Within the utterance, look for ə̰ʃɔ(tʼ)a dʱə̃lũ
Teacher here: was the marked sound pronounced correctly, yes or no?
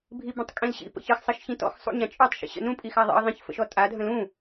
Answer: yes